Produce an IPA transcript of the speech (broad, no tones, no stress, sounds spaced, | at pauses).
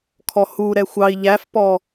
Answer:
kʰ ɔ h u ɾ ɛ xʷ ɑ i̯ ʎ æ f p ɔ